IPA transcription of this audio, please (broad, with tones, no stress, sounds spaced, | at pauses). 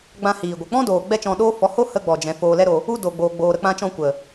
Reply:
ɡ͡b ã˧ h iː˨ ɡʷ ɨ˨ k͡p ɔ̃˦ d oː˨ ɡ͡b ɛ˦ t͡ʃ ɔ̃˧ ɗ oː˦ f ɔ˨˦ h o˦ h ə˧ ɡ͡b ɔ˨ d͡ʒ ɛ̃˨ f oː˧ l ɛ˦ ɾ o˧ | u˧ d o˨ ɡ͡b oː˨ ɡ͡b oː˨ ɾ ə˧ k͡p ã˧ t͡ʃ ɔ̃˧ kʷ ə˨